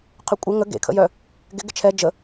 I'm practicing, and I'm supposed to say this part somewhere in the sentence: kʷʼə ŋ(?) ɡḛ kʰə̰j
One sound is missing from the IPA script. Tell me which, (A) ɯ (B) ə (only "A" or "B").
B